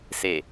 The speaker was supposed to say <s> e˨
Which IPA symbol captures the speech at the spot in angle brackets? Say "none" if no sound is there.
s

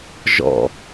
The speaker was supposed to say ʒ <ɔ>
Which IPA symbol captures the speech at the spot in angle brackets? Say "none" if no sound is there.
ɔ̰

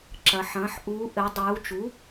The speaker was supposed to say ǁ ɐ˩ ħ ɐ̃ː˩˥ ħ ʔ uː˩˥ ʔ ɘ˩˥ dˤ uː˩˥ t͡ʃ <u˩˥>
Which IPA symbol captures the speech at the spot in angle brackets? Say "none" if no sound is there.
u˩˥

